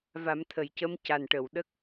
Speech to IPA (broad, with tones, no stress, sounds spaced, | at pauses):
v a˨˩˦ m t̪ʰ ə˨˩˨ j c ə˧˥ m c a˨˩ n ʈ ə˨˩˨ w ɗ ə˦˥ k̚